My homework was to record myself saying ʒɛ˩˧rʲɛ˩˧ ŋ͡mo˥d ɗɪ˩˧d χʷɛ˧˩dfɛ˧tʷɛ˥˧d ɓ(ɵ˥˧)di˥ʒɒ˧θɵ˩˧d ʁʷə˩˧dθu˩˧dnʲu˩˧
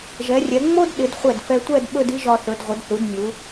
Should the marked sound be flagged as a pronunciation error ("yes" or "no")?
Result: no